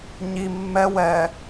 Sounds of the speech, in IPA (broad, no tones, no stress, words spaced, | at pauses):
ɲi mːɛ wɛ